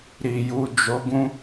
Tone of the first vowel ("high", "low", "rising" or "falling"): low